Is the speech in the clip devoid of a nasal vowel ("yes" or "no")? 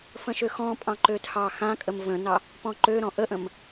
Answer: no